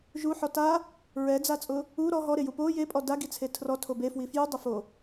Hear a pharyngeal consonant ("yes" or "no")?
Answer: yes